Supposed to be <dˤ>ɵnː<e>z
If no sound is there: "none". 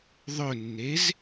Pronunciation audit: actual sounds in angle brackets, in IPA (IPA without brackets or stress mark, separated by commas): ðˤ, e